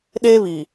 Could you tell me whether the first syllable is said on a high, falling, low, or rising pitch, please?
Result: high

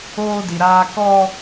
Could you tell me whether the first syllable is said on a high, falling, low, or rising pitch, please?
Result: high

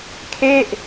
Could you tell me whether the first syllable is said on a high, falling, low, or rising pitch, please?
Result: falling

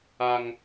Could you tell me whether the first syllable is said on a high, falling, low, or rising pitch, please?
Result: high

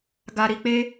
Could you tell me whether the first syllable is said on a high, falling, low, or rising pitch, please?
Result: low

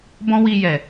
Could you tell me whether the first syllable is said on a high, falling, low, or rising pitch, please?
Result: high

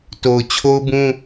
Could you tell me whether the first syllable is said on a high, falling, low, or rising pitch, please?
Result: low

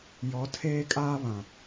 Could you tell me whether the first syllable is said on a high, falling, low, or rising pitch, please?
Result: rising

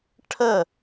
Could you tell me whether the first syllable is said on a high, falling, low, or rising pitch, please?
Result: falling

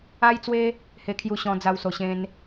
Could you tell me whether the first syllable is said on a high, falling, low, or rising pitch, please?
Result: high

